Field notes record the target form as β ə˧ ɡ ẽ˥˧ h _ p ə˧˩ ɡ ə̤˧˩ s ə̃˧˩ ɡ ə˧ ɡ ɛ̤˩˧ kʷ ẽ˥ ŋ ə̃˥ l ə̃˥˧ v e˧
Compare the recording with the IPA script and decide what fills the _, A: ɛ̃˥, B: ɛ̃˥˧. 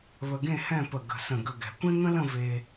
B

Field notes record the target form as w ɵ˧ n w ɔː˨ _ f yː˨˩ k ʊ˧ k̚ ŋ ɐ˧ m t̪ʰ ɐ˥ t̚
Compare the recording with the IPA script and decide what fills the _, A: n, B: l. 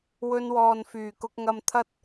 A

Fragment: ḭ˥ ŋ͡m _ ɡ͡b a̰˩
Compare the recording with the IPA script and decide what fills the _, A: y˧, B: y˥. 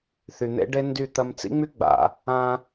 B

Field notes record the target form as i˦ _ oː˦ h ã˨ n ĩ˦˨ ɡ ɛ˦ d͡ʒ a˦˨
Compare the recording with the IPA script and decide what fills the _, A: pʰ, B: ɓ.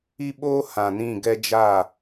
B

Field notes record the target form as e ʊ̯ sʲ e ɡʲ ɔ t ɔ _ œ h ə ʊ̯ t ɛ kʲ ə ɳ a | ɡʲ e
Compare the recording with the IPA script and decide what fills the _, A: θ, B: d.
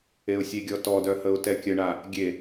B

